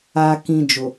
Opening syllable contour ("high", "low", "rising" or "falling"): low